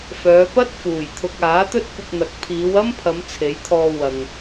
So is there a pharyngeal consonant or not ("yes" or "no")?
no